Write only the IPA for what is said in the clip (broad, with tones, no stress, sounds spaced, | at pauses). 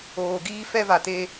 oː˨ ɡ iː˦ f ɛ˦ v a˨ t e˦